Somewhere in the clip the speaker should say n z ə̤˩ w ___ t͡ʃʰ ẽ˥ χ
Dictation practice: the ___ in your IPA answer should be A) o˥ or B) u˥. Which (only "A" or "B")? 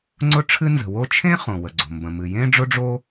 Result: A